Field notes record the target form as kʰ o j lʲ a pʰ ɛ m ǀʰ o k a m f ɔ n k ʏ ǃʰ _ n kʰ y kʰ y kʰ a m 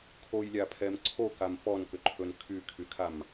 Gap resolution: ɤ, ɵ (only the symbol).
ɵ